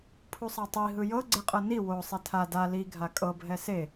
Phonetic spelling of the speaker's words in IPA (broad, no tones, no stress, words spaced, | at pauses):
pʰusˤatˤi ɦɯjɤ ɡ͡ǀeqʼɤni wo sˤetʰa da li ɡʱakʼɤ bʱɛse